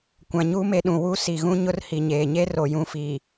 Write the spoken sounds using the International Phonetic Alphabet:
kʷã˨ɲuː˦me˨ɗũ˨ wu˦si˨ ɣũ˦ɲʊ˦rhi˨ɲeː˨ ɲe˦ro˨jũ˨fiː˨

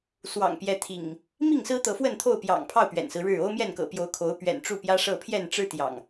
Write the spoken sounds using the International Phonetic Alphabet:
swɑ̰˨˩ŋpjɛ˨˦t̪ʰḭ˨˩ŋ | mi˥˨ŋsɹ̩˦ t̪ɤ˨˦fwə˥˨nt̪ʰo˥˨ʊ̯ pjɑ̰˨˩ŋpʰɑ˥˨ʊ̯ pɥɛ̰˨˩nsɹ̩˦ɻɻ̩˥˨ o˦ʊ̯mjɛ˥˨nkɤ̰˨˩pjo˨˦ʊ̯ kʰo˨˦ʊ̯pɥɛ̰˨˩n ʈ͡ʂu˥˨ pjä˦ʂɤ˥˨ pʰjɛ˥˨nʈ͡ʂɻ̩˦ t̪jɑ̰˨˩ŋ

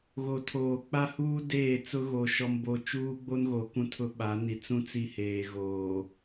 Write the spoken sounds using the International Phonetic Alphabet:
ɣo˨tʰoː˨ k͡pa˦huː˦ deː˦˨ t͡sʊ˦ɣo˨ ʃɔ˨mbo˨ t͡ʃuː˦ɡ͡bo˦nɣo˨ kũ˦˨tʰʊ˦ ɓa˨˦ ni˨t͡sũ˦ t͡si˦heː˨ ɣoː˨

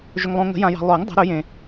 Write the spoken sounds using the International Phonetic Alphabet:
ʒɵ˨ŋlˠõ˨ŋə̤˨˩˦ jã˨jɑ̤˨lˠʊː˨˩˦ŋ dˤə̤˨˩˦ɾɵ˨˩˦ jẽ˨

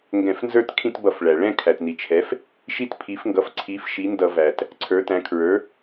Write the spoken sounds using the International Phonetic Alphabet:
ŋɡɛ̃˧˩˧fnzə˞˥˧t kʰĩ˥˧tbʌ˧˩˧fɭæ˩ ɭɛ̃˥˧ kʰæ˩tni˩t͡ʃʰɛ˩˥f | ʃi˥˧tpʰi˩˥fŋɡʌ˩˥f ǀʰi˩˥f ʃi˩˥ndʌ˧˩˧væ˩t | ǀʰə˞˩˥tæ̃˩˥ kʰɹə˞˩˥

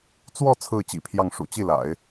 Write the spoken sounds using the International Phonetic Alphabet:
t͡swɔ˥˧ t͡sʰɹ̩˥˩t͡ɕḭ˨˩pʰjɑ˥˩ŋ ʂṵ˨˩t͡ɕi˥˩la̰˨˩˦ɪ̯

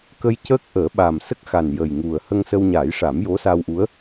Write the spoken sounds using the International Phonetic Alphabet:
kə˧jcəː˦˥k̚ ʔəː˨˩˦ɓa˨˩m sə˦˥k̚xa˨˩n jə˨˩jŋu˨˩ə̯ hə˧ŋsə˧wɲaː˨˩˦jʂa˨˩˦m jo˧˥sa˧wʔu˧˥ə̯

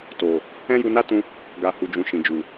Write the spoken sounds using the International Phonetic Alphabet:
to˨ | ɛ̃˦ju˧na˦tũ˧ | ɡa˨ hu˨d͡ʒũ˨ ʃĩ˨d͡ʒu˨

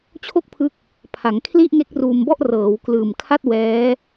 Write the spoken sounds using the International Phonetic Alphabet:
t͡ɕʰo˥˩k̚pʰɯ˦˥k̚ | pʰa˩˦ŋ kʰli˥˩ʔŋe˦˥k̚ ruː˧mbɔ˥˩ʔ rɤː˩˦wklɯː˨˩mkʰa˥˩t̚ wɛː˦˥

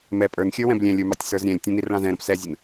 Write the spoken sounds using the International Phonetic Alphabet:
mɛ pʼə˞nxʲə˞wɛ̃b lʲɛ̃lʲə˞mɑtʲ sə˞zɾʲɛ̃lʲ tʲə̃nirɭɑ̃z ɛ̃ɾə̃p sɛzʲən

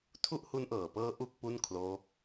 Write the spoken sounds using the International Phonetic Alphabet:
tʰu˥˩ʔhu˦˥nʔɤː˨˩pɤː˦˥ ʔu˥˩k̚pu˥˩n kʰloː˦˥k̚

